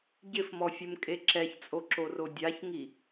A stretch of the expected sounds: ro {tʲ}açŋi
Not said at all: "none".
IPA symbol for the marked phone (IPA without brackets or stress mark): dʲ